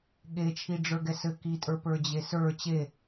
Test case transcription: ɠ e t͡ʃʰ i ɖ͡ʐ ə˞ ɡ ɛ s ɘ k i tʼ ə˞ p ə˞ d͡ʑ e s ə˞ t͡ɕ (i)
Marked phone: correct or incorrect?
incorrect: e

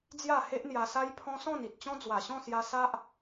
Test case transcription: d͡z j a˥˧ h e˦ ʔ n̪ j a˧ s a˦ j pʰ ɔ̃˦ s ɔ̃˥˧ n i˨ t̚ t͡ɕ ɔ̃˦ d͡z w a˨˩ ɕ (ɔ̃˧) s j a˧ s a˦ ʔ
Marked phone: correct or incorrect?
incorrect: ɔ̃˥˧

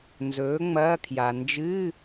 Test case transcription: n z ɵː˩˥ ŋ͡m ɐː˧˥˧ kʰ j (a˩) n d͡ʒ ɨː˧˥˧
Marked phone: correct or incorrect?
correct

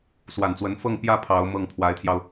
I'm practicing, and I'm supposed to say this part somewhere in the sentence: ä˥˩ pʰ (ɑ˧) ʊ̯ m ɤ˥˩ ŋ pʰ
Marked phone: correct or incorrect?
incorrect: ɑ˧˥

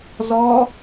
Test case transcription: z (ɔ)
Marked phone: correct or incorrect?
correct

